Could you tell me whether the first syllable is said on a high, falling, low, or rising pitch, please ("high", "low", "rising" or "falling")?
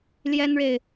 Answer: high